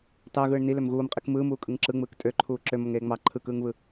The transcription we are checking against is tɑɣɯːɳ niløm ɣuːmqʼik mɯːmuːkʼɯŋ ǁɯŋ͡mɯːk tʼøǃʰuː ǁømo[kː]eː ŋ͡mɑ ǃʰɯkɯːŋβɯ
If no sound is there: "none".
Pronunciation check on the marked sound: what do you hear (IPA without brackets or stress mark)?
ŋ